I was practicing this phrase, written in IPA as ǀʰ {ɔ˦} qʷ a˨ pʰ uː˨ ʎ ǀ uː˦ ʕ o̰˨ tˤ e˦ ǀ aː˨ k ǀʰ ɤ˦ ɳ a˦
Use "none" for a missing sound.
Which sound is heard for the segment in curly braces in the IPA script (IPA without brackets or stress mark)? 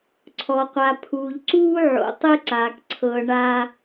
ɔ˨